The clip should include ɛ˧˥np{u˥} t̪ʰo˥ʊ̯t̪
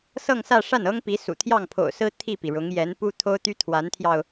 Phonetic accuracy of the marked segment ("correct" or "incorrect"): correct